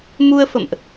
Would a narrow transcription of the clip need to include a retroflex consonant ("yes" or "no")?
no